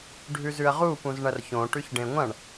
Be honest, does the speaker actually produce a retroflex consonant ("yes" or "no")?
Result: yes